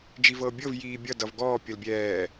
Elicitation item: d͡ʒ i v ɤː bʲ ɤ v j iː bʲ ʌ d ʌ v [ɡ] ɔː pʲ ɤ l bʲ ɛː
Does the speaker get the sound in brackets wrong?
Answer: no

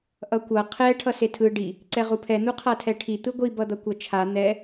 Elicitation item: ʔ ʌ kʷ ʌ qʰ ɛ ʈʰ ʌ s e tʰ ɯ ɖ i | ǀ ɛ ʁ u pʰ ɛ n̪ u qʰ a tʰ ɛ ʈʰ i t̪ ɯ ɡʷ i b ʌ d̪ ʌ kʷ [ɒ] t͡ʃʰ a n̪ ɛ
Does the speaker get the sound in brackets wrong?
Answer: yes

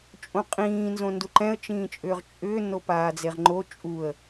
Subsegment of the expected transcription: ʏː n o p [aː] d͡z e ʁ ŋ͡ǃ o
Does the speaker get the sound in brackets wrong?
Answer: no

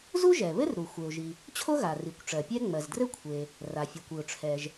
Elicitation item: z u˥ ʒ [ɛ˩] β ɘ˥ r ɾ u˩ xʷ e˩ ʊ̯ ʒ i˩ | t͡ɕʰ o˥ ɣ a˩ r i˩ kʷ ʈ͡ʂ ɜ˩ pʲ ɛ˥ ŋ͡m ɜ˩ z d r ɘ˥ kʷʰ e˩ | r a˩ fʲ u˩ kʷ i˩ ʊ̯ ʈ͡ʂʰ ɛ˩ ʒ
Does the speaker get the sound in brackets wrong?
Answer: no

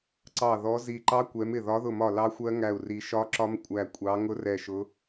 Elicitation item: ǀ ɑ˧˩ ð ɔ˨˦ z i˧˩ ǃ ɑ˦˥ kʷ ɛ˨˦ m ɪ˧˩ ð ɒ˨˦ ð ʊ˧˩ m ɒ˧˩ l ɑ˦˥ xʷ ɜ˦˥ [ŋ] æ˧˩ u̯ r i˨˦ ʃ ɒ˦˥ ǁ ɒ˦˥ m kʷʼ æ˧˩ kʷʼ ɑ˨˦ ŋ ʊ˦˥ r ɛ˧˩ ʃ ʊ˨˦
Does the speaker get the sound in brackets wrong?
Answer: no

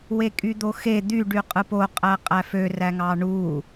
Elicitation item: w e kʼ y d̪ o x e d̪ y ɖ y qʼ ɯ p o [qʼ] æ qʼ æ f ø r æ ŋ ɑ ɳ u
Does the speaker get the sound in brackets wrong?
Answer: no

